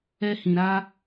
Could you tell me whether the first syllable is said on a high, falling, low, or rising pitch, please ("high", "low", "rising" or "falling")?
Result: high